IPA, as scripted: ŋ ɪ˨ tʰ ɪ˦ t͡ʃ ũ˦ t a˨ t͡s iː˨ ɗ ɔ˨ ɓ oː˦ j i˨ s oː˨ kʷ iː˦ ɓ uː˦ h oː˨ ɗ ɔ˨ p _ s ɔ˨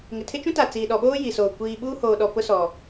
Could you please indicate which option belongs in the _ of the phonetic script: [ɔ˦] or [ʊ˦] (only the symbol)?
ʊ˦